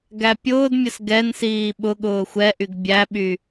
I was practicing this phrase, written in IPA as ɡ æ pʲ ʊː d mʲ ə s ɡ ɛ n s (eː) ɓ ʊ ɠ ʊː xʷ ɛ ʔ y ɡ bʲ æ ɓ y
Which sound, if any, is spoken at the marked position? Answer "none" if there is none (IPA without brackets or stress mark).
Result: iː